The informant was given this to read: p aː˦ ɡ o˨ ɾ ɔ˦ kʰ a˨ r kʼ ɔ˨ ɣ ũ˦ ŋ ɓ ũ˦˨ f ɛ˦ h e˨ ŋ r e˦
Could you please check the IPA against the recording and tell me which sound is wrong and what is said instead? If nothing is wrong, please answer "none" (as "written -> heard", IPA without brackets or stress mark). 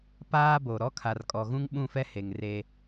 ɡ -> b